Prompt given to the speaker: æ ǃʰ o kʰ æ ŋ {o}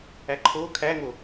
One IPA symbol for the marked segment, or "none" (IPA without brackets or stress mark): o